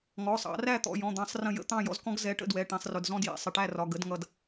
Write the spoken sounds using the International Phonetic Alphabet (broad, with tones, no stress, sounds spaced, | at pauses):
ŋ ɔ˩˧˩ sˤ ɑ̰˨˩˦ r æ˥˨ t̪ ɔ̰˩˧˩ j ɔ̃˩˧˩ d̪ ɑ̃˨˩˦ sˤ r ə̃˧˩ j ə̰˥˨ t̪ ɑ̃˥˨ j ɔ̰˥˨ z k ɔ̃˦ ɡ z ɛ˨˦ ʈ ə̰˥˨ d w ɛ˩˧˩ ʈ ĩ˩˧˩ sˤ r ʊ˩˧˩ d z ɔ̃˦ d j ɛ̰˩˧˩ sˤ ɪ˧˩ ʈ æ˥˨ r ɒ˩˧˩ ɡ ə˨˦ d ŋ ʌ˧˩ d